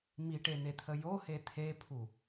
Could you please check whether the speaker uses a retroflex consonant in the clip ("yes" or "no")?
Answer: yes